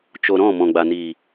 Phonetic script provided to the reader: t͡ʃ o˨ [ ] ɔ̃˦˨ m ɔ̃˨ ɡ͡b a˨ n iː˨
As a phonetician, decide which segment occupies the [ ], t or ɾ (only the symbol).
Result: ɾ